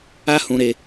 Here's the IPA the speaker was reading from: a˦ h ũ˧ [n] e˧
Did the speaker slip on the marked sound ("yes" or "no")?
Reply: yes